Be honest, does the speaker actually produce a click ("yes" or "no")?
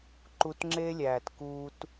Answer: yes